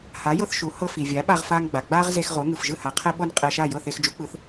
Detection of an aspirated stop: present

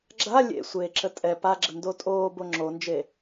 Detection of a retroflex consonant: absent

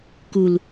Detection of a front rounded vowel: absent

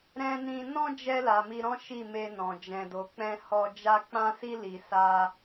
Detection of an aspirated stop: absent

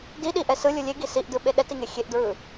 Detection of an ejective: absent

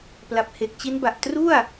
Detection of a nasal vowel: absent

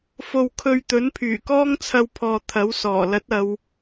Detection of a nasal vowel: absent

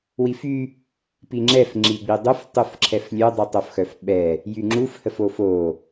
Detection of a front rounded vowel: present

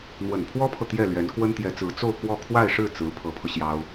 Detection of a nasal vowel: absent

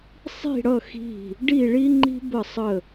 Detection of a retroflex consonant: present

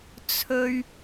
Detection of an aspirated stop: present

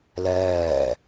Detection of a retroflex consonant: absent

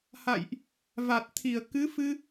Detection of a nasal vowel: absent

